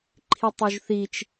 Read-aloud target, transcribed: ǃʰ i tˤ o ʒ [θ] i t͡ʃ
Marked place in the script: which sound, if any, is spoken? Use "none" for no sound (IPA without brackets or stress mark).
θ